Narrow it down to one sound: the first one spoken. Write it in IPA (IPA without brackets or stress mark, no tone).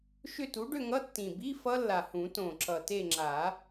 ʃ